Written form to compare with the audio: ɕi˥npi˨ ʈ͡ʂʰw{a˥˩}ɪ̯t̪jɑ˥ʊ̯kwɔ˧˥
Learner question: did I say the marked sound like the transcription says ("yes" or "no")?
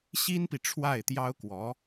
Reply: yes